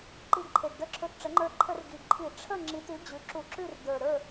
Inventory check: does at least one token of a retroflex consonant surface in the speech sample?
yes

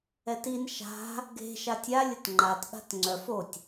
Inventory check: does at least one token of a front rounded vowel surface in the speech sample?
yes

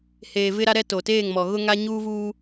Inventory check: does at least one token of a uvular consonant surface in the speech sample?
no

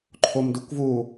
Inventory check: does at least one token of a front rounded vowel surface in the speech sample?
no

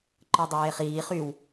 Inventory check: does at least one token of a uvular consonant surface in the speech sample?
yes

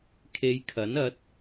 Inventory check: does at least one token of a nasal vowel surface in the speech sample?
no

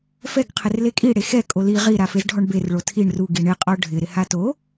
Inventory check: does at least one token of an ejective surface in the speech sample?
yes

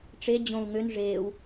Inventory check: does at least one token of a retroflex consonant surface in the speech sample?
yes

